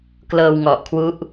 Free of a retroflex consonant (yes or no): yes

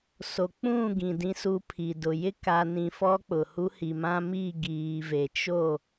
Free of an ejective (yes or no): yes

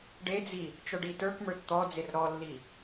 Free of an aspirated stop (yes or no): yes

